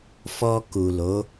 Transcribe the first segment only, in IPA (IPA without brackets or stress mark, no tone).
f